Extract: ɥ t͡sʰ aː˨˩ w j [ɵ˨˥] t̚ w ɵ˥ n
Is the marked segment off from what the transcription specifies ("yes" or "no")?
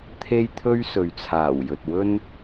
yes